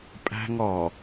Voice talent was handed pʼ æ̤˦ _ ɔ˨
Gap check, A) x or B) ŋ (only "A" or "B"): B